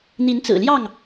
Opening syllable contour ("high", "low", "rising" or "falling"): rising